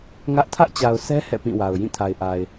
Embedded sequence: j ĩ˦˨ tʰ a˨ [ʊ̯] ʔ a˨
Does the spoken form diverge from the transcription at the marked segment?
yes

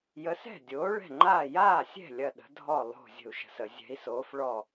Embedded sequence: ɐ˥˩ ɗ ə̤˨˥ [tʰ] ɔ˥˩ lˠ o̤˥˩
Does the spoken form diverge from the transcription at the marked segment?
yes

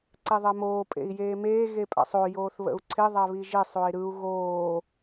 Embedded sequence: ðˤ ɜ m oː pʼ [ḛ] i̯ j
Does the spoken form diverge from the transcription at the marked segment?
no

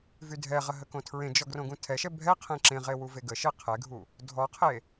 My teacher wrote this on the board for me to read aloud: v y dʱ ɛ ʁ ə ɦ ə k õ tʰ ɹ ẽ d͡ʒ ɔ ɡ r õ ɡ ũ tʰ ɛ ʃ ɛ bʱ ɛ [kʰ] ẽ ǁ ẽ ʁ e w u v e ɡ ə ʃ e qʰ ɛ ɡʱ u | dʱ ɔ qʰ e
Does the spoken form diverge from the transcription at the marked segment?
yes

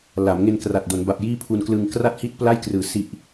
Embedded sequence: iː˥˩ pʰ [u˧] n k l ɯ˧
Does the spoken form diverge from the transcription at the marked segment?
no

